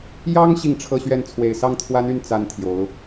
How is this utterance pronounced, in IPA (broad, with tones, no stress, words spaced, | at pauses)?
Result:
jɑ˥ŋ ɕi˥˧ŋʈ͡ʂʰɤ˥˧ɕɥɛ˥˩n t͡sʰwe˨˩ɪ̯sɑ˥˩ŋt̪ʰwa˥ny˥˩n t͡sa˥nt̪ʰjo˧˥ʊ̯